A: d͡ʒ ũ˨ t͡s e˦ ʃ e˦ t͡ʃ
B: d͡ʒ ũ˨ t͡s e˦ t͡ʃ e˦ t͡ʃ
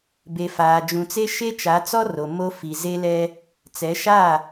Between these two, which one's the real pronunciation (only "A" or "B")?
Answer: A